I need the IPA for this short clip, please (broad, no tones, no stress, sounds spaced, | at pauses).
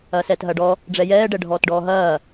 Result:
ɐː s ɛː t ɦ ɐː ɖ ɔ | ɖ͡ʐ ɛ j ɛː ɖ ɛ ɖʱ ɔː t ɖ ɔː ɦ ɐː